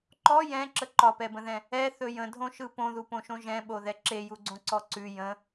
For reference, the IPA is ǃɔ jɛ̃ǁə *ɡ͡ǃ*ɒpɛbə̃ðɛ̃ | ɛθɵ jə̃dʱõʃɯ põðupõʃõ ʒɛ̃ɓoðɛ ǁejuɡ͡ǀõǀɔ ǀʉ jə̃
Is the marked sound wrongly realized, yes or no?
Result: yes